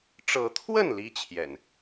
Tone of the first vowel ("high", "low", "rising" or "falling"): rising